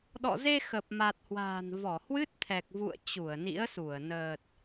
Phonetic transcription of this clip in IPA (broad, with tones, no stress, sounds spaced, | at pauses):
ɗ ɔ̰˧˨ z e˧ x ə˨˩ p̚ m a˨˩ t̚ h w a̤ː˨˩ n v ɔ˧˩ h w ɨ˦˥ t̚ t̪ʰ ɛ˨˩ k̚ v ṵ˧˨ ə̯ t͡ɕ u˧˩ ə̯ n ḭ˧˥ ə̯ s u˧˩ ə̯ n əː˨˩ t̚